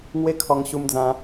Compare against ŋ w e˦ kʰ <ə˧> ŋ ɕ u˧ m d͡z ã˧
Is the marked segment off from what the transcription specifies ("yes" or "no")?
yes